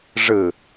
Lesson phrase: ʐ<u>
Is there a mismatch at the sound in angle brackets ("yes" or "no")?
yes